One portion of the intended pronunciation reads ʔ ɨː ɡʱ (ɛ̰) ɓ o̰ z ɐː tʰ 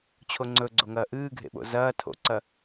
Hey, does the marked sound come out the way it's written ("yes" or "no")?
no